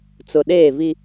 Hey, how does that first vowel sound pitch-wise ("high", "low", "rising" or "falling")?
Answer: low